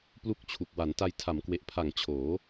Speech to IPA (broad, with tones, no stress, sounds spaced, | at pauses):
p l u˥˩ k̚ t͡ɕʰ u˨˩ k̚ w a˩˦ n t a˧ j tʰ a˩˦ m k w e˨˩ ʔ pʰ a˨˩ ŋ t͡ɕʰ oː˩˦